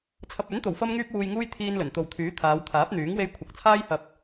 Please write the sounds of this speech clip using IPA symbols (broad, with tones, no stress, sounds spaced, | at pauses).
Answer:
t͡sʰ ɐ˨ p̚ ɵ˨˥ n t̪ o˨˩ w f ɐ˧ m ŋ yː˥ p̚ w uː˧ j ŋ uː˥ j t̪ʰ iː˧ n l ɵ˨˩ n t̪ o˨ w t̪ʰ yː˨˥ t̪ʰ aː˨˧ w t̪ʰ aː˨˥ p̚ n̪ yː˨˥ ŋ w e˧ j kʷʰ ɐ˨ k̚ t͡sʰ aː˥ j h ɐ˧ p̚